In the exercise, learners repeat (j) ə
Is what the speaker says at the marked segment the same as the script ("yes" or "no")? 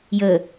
yes